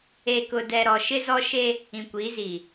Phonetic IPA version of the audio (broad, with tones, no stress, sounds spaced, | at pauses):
e˨ k ʊ˨ d ɛ˨ ɾ ɔ˨ ʃ ɪ˦ z ɔ˦ ʃ e˦ | ĩ˨ kʷ iː˨˦ z iː˨